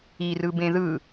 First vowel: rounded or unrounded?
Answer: unrounded